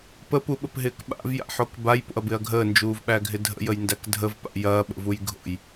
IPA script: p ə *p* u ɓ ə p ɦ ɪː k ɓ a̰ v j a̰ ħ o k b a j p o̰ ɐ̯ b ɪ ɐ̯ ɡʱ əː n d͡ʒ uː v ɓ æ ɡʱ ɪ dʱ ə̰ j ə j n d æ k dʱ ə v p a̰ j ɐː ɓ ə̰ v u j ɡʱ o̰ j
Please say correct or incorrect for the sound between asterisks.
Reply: correct